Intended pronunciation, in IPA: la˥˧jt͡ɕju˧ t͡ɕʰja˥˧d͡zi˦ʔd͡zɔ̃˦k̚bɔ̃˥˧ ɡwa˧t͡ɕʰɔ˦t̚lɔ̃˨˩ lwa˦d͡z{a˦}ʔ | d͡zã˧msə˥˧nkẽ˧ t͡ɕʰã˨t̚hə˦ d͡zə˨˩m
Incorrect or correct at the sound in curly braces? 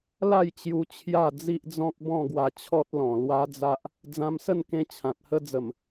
correct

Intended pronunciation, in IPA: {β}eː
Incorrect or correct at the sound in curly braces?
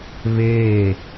correct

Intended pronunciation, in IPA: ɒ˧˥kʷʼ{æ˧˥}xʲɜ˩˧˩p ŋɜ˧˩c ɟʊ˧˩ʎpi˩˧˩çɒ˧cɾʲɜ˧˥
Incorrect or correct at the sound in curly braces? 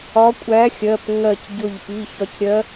correct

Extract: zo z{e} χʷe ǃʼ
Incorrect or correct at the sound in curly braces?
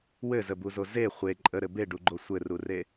correct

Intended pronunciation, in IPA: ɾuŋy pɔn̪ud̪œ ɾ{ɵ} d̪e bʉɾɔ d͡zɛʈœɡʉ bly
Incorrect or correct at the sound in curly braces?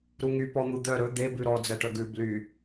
correct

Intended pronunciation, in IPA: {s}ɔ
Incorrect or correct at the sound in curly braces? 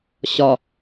incorrect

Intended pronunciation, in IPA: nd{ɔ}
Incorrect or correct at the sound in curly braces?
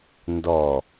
correct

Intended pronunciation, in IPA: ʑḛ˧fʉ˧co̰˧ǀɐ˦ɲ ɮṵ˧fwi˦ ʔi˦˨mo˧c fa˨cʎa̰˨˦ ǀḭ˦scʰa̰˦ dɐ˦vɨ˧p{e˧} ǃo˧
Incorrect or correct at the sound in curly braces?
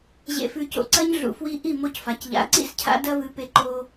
correct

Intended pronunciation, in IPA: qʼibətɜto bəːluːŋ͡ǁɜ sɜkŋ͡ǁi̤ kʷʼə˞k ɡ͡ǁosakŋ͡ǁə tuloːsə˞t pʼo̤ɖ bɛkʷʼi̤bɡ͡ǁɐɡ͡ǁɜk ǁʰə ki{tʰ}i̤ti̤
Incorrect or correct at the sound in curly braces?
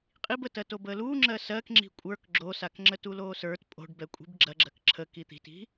incorrect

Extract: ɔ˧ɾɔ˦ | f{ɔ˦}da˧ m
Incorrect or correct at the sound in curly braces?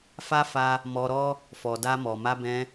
incorrect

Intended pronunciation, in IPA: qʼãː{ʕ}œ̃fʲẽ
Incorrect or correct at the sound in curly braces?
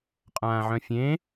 correct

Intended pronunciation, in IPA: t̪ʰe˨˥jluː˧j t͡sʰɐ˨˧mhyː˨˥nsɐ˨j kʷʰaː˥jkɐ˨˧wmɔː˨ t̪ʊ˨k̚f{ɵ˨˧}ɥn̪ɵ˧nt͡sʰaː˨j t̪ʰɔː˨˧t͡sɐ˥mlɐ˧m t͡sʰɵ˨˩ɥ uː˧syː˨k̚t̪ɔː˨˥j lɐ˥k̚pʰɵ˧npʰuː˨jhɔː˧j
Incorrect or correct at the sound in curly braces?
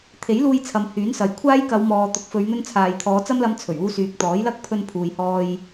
correct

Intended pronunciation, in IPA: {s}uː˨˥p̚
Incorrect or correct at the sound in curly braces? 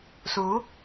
correct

